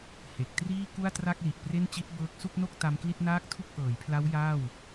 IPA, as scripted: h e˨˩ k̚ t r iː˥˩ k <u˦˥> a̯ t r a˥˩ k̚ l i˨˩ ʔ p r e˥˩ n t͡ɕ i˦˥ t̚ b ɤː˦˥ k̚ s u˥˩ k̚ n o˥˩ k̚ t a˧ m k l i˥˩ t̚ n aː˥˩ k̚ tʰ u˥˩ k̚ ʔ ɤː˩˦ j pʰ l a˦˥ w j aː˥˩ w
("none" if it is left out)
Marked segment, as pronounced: u˥˩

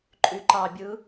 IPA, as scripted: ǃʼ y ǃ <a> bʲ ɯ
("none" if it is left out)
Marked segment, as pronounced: ɑ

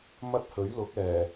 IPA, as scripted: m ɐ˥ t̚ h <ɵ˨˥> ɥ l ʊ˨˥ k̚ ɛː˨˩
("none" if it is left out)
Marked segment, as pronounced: ɵ˨˥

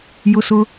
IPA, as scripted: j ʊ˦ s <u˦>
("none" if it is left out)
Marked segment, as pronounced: ʊ˦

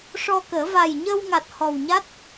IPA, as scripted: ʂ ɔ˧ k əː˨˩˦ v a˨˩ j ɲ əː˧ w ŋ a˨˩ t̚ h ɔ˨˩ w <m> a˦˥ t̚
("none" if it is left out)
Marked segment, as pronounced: ɲ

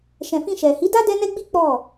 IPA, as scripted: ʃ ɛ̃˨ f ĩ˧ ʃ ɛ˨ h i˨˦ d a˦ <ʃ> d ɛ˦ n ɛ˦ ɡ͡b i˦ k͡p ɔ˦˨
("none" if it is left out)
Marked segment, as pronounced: none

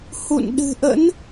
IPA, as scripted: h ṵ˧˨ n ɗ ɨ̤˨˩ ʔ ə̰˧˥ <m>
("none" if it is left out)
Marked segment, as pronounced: n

